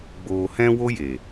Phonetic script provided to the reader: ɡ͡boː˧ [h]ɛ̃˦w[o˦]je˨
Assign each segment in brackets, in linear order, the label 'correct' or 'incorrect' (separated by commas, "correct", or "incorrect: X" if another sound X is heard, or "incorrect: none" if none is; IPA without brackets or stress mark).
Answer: correct, correct